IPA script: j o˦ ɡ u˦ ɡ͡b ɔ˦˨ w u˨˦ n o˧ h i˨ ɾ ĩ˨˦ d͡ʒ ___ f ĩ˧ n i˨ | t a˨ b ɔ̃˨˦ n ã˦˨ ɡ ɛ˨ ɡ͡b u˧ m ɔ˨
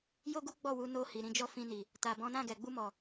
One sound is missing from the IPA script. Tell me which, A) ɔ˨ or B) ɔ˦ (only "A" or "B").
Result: B